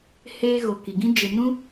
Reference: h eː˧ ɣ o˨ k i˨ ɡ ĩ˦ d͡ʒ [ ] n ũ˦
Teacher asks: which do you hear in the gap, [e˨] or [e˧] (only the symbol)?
e˧